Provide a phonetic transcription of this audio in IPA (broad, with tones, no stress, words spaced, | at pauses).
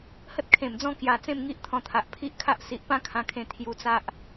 hə˦t̚kʰẽ˨˩md͡zɔ̃˥˧ kja˧ t͡sẽ˥˧mŋi˦ʔt̪ʰɔ̃˧t̪ʰa˨ʔ pʰi˦ʔkʰa˦ʔ si˨ʔ pã˦kʰã˧kʰẽ˧ t̪ʰju˧t͡sa˦ʔ